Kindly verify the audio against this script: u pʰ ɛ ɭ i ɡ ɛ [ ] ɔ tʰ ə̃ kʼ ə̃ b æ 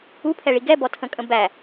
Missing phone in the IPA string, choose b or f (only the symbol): b